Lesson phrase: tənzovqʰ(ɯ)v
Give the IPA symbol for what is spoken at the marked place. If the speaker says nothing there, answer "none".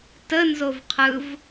ɯ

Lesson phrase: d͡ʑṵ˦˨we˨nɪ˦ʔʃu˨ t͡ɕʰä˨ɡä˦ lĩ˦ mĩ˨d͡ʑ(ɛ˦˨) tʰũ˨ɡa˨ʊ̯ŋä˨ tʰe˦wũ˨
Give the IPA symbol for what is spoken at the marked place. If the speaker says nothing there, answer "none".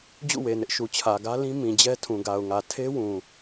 ɛ˦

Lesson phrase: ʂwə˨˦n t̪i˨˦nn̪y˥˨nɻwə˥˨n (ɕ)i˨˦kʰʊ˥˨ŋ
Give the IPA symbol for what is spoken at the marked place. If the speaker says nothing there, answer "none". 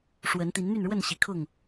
ɕ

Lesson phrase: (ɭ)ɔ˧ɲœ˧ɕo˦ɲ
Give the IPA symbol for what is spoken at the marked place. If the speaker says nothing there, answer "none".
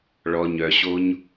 ɭ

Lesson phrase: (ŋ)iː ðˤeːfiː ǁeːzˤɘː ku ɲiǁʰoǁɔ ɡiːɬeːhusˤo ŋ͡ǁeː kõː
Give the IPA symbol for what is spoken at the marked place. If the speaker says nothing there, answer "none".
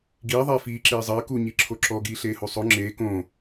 ɡ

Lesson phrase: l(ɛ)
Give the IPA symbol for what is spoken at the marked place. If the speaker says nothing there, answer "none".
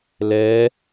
ɛ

